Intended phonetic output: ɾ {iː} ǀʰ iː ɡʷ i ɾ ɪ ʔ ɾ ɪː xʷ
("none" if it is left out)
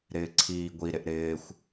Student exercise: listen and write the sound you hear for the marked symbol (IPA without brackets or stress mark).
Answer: ɪː